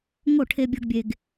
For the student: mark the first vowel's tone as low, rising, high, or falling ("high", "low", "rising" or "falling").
falling